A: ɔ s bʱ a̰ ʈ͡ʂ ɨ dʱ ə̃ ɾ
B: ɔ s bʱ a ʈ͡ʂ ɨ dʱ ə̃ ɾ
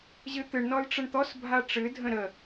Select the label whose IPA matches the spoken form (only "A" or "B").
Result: B